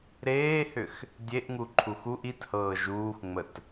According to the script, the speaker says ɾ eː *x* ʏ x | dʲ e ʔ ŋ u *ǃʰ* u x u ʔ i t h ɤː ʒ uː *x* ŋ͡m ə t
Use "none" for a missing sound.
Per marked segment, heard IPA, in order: h, ǃʰ, x

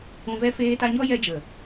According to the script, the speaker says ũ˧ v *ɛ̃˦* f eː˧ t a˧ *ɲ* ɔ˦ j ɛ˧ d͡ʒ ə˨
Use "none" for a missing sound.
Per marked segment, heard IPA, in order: ɛ˦, ɲ

